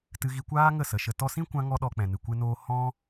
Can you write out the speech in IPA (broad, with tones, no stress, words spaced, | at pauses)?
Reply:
tɨ˧ɣi˧kʷaː˦ ŋə˦˨sə˨ʃə˧ tɔ˧sĩ˦kʷã˧ ŋɔ˦ɗɔ˧k͡pɛ̃˨nɨ˨ kʷe˦noː˦ hɔ̃˦